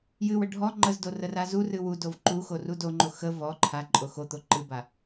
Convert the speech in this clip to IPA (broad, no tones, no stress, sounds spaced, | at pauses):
j ɨ w ə ɖʱ ɔ ŋ͡ǃ ə z d o r ə r a z u r ɨ w u d o v ǃ u x o r u d o ŋ͡ǃ o x ə v ɔ ǃʰ a ǃʼ o x o t̪ o ǃ ɨ b a